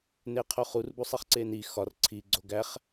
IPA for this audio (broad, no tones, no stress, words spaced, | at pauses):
neqʰoχur busˤiχǀeni xɒr ǀʰi ɡ͡ǀoɡæχ